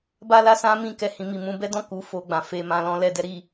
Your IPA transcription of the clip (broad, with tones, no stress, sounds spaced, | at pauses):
b a˦ l a˦ s ã˦ m ĩ˦˨ k ɛ˧ h ĩ˧ m i˨ m ũ˧ b ɛ˦ d ɔ̃˦˨ k u˧ f o˧ ɡ͡b ã˨ f e˧ m ã˧ l ɔ̃˦ l ɛ˧ d ɛ˦ ɾ i˧